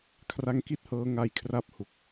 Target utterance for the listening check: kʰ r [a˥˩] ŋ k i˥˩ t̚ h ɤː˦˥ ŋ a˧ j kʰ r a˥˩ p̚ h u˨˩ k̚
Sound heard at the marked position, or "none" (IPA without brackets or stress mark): a˦˥